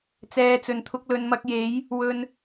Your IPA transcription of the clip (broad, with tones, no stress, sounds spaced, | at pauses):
t͡s ɛː˨ t͡s ɵ˨˩ n t̪ʰ ʊ˧ k̚ l ɵ˨ n m ɐ˧ k̚ j e˨˥ j | w ɵ˨ n